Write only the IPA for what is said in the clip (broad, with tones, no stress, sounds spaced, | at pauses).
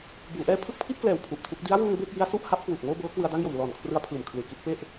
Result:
b uː˩˦ ʔ ɛː˧ pʰ ɯ˥˩ k̚ pʰ i˥˩ t̚ k l ɛː˨˩ w pʰ u˨˩ ʔ tʰ u˦˥ k̚ d i˦˥ a̯ w uː˧ ŋ b e˥˩ k̚ j i˦˥ a̯ s u˥˩ ʔ h a˦˥ p̚ k w uː˨˩ k̚ ŋ oː˥˩ b ɤː˦˥ k w ɯ˧ a̯ d a˥˩ ŋ j o˨˩ m l ɔː˨˩ n kʰ r ɯ˧ a̯ pʰ ɯː˨˩ m kʰ l ɯː˨˩ k i˥˩ t̚ p e˥˩ ʔ